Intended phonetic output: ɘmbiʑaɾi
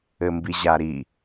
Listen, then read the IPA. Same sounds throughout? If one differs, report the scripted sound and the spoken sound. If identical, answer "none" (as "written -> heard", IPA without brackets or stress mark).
none